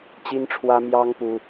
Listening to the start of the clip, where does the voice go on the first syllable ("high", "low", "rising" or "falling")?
high